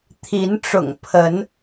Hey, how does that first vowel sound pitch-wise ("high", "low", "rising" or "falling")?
rising